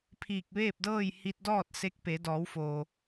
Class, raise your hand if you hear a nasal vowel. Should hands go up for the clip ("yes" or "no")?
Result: no